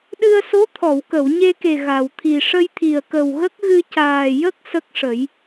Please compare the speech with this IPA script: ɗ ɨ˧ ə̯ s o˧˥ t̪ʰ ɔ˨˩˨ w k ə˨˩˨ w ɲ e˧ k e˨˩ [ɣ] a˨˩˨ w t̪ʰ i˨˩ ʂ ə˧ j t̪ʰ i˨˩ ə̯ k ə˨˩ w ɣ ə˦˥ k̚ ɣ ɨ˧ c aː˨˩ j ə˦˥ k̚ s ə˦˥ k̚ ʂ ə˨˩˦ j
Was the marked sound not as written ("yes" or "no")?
no